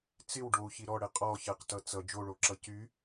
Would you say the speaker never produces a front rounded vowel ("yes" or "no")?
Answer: no